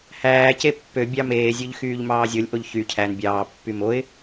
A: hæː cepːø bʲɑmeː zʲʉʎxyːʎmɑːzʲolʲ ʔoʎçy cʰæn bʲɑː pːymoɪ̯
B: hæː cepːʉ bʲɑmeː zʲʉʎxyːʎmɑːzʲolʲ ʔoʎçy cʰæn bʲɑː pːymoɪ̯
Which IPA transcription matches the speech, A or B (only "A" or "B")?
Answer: A